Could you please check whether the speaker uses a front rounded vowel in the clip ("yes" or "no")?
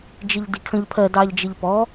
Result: no